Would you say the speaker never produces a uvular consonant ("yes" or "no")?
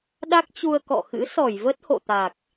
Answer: yes